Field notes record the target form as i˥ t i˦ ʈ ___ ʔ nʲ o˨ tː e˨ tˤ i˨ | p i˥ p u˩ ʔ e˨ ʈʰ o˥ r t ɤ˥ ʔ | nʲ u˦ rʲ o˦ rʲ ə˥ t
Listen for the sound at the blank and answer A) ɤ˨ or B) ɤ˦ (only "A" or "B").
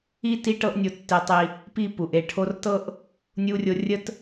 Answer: B